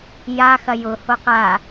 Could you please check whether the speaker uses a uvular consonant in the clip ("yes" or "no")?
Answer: yes